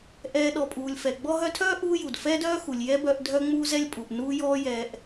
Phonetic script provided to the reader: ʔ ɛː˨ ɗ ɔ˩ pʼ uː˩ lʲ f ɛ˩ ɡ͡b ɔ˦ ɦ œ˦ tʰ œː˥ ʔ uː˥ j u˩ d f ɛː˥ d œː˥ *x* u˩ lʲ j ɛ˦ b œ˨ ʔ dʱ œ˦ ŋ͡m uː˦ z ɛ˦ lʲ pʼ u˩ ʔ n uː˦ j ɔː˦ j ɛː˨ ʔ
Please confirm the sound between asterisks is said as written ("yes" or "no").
yes